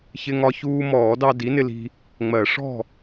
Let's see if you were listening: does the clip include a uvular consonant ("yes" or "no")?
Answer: no